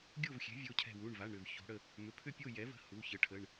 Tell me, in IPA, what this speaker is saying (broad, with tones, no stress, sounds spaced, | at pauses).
ɡʲ o˥˨ v xʲ ɛ̤˩˥ vʲ o˩˧˩ cʰ ɛ̤˧˩ w u˩˧˩ ɳ v a˩˧˩ ɳ ɾ ʏ˧˩ v ç o̤˩˧ ɽ ə˧˩ | m ʏ˩˧˩ pʰ ʏ˥˨ pʲ o˥˨ j ɛ˩˥ v ə̤˩˧˩ h u˩˧˩ ç ə˩˥ ʈʰ ə˩˧˩ ɳ